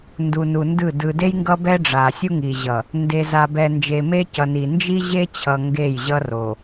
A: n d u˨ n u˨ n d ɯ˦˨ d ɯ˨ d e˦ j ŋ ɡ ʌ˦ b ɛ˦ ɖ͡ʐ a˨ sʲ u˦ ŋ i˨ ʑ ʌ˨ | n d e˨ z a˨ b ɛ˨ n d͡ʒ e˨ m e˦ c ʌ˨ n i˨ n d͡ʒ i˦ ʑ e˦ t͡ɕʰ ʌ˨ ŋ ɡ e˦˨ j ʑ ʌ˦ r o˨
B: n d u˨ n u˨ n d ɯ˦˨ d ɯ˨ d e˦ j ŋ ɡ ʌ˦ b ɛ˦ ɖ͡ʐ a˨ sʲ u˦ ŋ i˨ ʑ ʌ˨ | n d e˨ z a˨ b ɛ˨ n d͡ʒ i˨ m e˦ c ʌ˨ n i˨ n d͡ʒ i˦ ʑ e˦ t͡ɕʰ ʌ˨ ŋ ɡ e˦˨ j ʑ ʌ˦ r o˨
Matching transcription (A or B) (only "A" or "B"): A